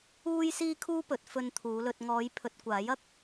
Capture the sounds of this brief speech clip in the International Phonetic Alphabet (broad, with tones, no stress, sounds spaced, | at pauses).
uː˥ j s iː˥ kʰ uː˥ p ɵ˨˥ t̚ f ɵ˧ n t̪ʰ uː˨˧ l ɵ˨ t̚ ŋ ɔː˨˧ j pʰ ɵ˨ t̚ kʷ aː˨˥ j ɐ˥ k̚